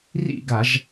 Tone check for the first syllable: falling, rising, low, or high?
falling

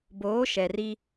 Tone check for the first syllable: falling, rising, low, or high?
rising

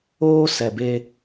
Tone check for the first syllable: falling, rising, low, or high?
high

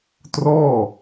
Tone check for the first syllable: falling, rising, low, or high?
falling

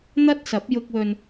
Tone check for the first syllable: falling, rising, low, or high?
high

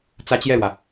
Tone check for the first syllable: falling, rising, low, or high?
high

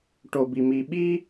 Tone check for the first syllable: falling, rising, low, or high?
low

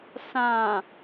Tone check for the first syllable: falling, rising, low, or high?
low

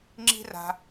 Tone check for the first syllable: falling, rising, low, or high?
high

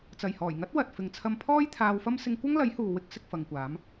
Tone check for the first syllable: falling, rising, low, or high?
low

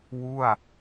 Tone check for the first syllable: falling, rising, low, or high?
falling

